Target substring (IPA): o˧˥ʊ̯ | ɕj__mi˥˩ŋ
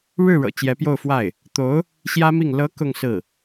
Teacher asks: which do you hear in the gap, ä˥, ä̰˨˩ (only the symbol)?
ä˥